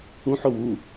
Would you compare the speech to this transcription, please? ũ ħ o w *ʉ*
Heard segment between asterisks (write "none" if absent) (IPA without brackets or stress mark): u